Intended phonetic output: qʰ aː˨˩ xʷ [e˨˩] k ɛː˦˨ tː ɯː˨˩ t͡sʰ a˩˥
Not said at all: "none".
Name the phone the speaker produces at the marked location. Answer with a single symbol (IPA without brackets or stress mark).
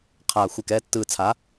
e˨˩